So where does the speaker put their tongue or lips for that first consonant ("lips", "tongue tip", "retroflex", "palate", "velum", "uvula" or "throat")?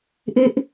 throat